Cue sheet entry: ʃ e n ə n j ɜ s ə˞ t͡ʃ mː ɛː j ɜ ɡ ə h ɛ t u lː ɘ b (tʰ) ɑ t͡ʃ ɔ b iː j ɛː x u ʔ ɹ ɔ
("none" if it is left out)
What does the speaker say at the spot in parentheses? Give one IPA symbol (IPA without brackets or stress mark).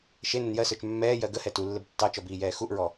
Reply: tː